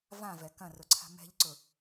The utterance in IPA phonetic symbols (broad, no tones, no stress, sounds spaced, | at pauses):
v ã v ɛ k ɐ̃ r ʊ ǀʰ a̤ m ɛ̤ ʎ ǀ ʊ